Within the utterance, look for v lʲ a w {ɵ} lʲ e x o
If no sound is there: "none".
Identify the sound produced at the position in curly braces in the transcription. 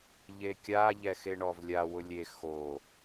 ʊ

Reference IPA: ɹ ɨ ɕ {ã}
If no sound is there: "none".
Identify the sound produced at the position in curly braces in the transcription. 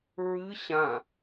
ã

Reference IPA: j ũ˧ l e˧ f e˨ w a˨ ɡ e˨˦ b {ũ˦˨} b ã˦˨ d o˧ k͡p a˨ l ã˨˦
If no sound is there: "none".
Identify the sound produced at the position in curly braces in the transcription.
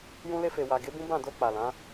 ũ˦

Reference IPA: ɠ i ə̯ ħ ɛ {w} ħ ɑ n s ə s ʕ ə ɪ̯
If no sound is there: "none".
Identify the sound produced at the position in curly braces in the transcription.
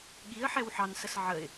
w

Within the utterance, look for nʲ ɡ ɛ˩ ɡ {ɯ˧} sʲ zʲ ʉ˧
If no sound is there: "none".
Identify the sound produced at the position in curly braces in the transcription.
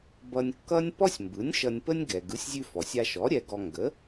ɯ˩˥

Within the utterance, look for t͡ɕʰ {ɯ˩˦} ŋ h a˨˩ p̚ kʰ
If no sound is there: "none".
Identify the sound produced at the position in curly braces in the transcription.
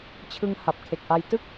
ɯ˧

